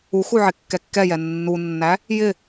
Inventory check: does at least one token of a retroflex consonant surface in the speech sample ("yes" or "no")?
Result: no